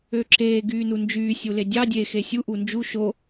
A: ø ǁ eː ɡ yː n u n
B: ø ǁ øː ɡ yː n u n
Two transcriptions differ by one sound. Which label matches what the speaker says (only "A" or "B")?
A